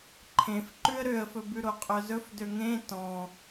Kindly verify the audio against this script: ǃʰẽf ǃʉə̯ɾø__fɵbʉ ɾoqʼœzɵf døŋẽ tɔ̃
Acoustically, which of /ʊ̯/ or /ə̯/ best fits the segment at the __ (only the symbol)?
ə̯